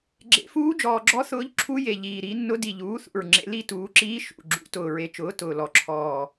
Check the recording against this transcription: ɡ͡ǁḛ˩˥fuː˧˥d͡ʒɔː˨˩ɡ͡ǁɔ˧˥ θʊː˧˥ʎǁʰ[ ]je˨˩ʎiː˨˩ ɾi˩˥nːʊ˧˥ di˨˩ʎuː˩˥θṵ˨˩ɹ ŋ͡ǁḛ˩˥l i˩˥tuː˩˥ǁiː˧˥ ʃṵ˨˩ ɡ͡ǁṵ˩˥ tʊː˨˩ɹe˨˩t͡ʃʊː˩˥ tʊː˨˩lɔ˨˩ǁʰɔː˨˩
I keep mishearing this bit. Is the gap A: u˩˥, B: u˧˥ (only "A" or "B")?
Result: B